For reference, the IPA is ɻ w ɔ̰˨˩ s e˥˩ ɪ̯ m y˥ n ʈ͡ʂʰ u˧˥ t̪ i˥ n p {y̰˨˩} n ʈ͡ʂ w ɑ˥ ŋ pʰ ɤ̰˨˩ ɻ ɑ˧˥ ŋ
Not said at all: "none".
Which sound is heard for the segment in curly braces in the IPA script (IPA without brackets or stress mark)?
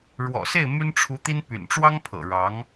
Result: y̰˨˩